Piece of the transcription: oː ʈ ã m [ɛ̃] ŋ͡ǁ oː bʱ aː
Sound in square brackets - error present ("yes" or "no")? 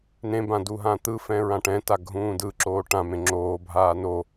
yes